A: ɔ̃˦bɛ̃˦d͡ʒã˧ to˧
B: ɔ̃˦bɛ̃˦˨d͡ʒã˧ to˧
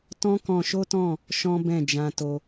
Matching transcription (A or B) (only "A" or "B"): B